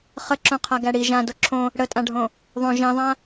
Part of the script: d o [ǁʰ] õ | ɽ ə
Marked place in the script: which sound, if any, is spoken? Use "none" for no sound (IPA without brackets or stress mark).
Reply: ǁʰ